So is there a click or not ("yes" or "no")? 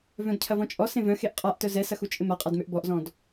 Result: no